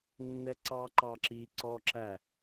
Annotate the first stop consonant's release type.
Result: click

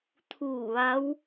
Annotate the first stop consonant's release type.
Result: aspirated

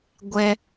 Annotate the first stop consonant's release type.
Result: plain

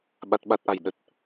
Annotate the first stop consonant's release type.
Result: implosive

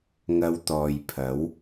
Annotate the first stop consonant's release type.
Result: plain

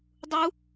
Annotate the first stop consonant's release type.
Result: plain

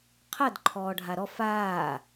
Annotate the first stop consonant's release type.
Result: aspirated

